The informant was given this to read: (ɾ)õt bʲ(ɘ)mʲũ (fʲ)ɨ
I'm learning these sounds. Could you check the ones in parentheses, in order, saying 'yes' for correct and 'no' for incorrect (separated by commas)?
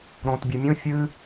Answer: yes, no, yes